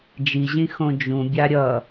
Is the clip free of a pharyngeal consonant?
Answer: yes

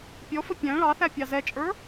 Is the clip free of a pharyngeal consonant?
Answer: yes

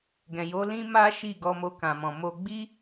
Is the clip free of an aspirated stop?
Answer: yes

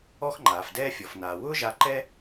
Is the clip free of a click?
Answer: no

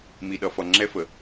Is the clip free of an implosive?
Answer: no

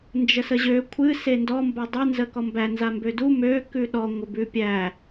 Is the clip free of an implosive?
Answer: no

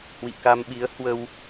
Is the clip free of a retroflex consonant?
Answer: yes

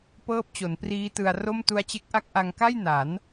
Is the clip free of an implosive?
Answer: yes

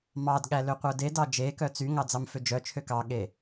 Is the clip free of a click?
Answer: yes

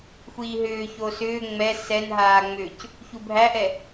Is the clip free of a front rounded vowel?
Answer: no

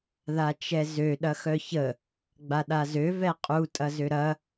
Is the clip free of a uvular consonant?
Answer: no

